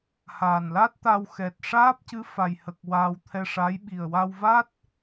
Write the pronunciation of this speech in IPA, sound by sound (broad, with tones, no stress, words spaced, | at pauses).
haː˨˩nla˦˥t̚t̪a˧w xɛ˨˩t̚ ʂaː˦˥p̚cɨ˧˥ fa˨˩jhə˨˩k̚ waː˧wt̪ʰɛ˧ʂa˧˥j ɓi˨˩ə̯wa˧wva˦˥t̚